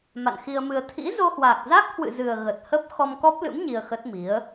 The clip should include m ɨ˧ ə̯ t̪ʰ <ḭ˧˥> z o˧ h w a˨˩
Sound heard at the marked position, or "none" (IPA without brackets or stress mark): ḭ˧˥